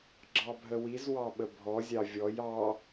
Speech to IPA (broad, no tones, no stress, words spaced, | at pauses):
ɡ͡ǁɑbʱəwiz wɑɓəbʱɔ zʲɑvʲɔj ɑ